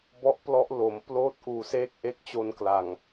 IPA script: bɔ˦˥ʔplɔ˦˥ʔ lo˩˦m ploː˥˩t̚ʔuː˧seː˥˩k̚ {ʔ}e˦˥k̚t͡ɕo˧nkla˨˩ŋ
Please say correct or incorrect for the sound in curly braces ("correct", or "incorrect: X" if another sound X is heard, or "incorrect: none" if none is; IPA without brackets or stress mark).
correct